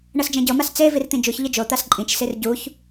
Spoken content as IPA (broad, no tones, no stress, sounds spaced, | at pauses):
ɳ ɤ s d͡ʒ ɛ̃ ɟ ɤ m a s t͡s e v i r t̪ ĩ d͡ʒ u ç ʎ ɯ d͡ʒ o t̪ a s ǃʼ ĩ t͡ʃ s i r ɟ u ç